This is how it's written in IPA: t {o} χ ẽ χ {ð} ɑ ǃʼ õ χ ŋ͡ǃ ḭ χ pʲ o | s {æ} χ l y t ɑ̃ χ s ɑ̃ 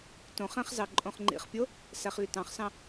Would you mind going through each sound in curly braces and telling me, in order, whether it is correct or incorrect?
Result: incorrect, incorrect, correct

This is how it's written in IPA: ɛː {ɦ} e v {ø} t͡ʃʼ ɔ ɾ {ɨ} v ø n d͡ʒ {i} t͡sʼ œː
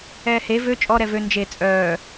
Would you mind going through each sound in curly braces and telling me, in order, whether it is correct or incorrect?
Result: incorrect, correct, incorrect, incorrect

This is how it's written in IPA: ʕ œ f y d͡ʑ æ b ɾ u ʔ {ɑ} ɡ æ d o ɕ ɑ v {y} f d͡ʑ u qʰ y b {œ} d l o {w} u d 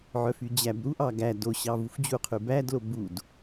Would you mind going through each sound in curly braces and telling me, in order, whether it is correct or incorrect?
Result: correct, incorrect, incorrect, incorrect

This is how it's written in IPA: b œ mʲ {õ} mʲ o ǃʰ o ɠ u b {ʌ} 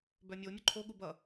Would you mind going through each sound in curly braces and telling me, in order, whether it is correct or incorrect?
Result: incorrect, correct

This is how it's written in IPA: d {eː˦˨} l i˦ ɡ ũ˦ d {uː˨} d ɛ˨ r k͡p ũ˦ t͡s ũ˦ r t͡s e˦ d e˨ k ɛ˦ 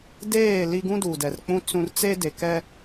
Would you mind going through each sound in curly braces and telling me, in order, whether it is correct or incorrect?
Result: correct, correct

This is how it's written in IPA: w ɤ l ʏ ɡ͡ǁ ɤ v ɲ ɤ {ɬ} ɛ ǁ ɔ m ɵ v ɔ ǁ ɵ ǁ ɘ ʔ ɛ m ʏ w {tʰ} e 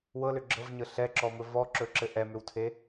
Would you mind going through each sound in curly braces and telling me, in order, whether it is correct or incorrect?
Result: correct, correct

